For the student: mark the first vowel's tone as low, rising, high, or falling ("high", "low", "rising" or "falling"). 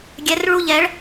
rising